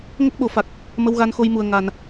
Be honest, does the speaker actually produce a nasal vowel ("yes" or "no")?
no